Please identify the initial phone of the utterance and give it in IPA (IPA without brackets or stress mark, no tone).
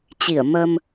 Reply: t͡ɕ